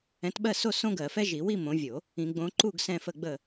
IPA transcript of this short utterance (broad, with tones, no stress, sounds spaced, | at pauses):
ɛ̃˨˦ t ɓ ɜ˥˨ s o˥˨ s õ˥ ɡ ɜ˨˩˦ f ɛ˥ ʒ i˨˩˦ w i˥˨ m õ˨˦ vʲ o˨˩˦ | ĩ˨˩˦ ɡ͡b õ˨˦ ǃ u˥˨ ɡ s ɛ̃˥˨ f ə˥˨ ɡ͡b ə˥˨